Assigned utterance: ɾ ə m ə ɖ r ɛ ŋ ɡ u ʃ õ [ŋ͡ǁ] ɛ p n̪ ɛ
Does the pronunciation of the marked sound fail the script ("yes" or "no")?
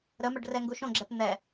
yes